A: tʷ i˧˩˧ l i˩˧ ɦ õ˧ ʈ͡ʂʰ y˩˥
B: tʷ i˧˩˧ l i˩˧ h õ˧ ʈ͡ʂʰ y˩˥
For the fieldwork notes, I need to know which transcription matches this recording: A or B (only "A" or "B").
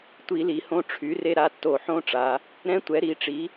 B